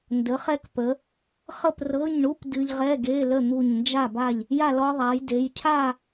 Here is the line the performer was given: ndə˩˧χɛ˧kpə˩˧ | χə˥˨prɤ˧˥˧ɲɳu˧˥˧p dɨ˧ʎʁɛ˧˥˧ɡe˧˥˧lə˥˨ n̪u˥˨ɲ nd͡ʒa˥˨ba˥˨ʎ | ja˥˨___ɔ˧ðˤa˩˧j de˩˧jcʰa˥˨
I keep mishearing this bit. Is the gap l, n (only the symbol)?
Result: l